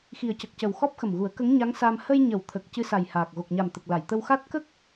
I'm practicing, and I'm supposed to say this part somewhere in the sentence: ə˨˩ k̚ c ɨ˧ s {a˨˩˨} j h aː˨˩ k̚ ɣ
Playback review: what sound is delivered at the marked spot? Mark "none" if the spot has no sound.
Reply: a˨˩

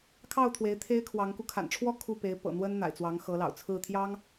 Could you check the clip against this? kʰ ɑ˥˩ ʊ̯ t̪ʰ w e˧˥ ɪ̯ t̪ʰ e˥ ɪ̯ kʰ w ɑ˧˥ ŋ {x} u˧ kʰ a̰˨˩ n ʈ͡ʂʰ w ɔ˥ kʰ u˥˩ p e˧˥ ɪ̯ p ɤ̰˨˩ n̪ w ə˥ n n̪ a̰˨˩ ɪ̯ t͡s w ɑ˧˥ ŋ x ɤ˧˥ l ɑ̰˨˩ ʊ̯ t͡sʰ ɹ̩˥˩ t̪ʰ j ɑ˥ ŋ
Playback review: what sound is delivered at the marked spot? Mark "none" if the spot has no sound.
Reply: k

